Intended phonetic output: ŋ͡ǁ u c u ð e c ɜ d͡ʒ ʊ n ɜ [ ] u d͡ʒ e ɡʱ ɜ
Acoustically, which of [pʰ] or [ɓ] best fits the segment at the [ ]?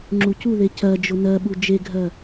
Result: ɓ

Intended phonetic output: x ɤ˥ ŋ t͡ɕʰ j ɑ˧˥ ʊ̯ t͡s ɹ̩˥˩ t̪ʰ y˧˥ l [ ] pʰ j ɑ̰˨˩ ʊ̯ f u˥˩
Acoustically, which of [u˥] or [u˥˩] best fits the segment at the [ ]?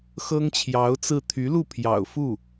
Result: u˥˩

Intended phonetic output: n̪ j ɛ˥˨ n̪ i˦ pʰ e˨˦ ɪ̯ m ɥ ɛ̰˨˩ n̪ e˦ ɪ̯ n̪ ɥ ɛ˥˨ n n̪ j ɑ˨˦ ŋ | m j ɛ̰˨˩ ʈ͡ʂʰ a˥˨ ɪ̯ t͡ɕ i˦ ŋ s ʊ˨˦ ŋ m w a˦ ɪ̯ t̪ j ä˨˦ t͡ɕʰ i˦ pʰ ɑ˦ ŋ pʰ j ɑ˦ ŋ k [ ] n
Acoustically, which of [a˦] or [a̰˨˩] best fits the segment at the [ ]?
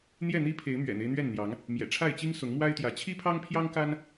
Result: a˦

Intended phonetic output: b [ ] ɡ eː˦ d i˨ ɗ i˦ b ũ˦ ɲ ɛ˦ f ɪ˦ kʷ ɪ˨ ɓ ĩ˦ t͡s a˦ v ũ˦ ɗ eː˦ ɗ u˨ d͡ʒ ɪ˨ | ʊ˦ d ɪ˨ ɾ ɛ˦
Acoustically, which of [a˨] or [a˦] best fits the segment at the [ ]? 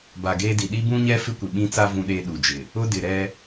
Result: a˨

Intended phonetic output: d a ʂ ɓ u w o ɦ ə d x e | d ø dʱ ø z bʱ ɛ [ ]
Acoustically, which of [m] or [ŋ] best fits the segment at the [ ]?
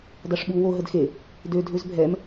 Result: m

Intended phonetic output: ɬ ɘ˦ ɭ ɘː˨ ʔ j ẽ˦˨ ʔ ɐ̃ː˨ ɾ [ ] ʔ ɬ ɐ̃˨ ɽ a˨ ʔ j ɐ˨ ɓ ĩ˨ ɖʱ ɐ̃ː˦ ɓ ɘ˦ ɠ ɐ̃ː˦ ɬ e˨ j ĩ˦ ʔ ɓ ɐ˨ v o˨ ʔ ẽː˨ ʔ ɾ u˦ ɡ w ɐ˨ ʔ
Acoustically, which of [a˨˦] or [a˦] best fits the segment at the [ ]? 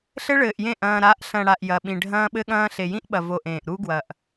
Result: a˨˦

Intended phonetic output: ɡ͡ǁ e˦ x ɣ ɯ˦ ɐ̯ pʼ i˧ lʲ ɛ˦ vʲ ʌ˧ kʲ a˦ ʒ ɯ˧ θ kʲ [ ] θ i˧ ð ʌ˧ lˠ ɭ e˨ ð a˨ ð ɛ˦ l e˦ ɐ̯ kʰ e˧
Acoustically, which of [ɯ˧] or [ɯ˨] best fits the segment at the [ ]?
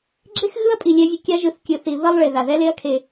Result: ɯ˧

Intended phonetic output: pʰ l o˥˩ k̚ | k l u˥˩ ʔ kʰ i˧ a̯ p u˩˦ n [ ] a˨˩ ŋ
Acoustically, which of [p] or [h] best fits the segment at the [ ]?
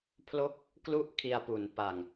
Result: p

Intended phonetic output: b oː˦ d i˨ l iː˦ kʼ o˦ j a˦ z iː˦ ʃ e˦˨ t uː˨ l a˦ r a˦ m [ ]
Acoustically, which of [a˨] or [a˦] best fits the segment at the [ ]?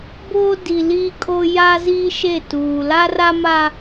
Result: a˦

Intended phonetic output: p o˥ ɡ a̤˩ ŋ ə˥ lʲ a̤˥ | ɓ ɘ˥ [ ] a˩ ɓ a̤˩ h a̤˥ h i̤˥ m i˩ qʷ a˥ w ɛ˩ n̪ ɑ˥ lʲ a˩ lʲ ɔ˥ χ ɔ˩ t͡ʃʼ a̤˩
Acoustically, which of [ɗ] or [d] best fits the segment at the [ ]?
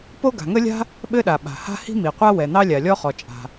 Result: ɗ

